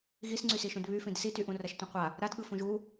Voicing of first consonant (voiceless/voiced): voiced